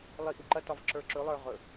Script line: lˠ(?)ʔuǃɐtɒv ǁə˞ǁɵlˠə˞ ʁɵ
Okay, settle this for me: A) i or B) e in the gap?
A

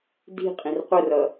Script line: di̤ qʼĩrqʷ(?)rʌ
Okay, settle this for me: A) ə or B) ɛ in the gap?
A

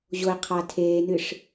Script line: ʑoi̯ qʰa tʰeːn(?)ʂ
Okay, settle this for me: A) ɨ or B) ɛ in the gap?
A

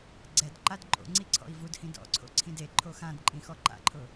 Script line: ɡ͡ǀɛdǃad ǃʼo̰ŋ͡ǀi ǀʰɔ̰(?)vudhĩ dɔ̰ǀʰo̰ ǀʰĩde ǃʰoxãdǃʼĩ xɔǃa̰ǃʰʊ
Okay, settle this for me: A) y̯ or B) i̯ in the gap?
B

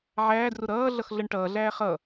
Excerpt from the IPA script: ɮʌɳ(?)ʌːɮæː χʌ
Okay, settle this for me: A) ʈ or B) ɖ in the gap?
A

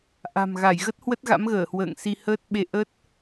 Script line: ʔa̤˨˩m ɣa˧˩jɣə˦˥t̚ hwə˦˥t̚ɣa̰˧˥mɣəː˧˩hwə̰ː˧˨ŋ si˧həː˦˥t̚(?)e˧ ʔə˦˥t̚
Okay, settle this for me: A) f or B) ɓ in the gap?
B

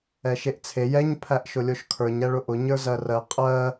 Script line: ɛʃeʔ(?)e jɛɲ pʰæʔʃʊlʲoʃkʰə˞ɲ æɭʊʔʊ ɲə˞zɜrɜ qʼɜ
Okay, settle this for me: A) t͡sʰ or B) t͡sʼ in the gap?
A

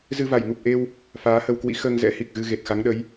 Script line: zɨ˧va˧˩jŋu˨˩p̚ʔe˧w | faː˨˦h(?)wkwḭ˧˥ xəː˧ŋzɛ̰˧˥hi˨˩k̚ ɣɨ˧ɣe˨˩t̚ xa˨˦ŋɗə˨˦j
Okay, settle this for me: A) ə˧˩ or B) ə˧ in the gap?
B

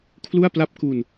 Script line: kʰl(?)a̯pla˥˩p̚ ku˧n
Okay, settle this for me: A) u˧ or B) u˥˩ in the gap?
B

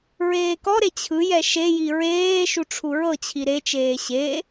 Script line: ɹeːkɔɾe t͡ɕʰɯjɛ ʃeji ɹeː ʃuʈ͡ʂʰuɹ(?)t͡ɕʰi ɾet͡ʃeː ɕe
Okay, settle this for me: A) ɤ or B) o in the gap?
A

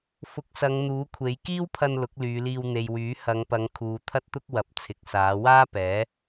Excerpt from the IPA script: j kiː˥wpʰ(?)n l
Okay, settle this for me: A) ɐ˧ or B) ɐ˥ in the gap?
A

